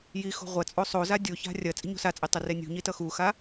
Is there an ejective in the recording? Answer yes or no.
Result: yes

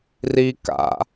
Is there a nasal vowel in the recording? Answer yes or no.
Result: no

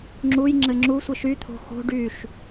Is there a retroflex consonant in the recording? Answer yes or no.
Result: yes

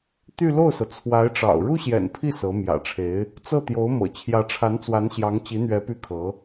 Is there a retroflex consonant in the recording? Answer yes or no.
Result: yes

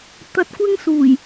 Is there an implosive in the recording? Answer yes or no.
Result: no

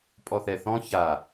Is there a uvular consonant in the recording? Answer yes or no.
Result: no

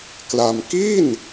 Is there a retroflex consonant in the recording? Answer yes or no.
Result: no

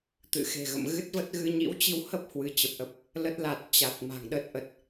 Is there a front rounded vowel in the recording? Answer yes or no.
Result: no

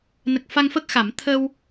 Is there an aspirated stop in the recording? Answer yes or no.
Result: yes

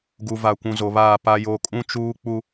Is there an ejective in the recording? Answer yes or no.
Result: yes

